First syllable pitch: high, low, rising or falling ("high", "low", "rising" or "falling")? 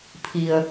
low